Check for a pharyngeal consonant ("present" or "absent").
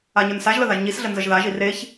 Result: absent